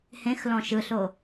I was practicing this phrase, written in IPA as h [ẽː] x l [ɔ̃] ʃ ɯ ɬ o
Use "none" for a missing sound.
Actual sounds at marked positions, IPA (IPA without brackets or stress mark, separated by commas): ẽ, ɔ̃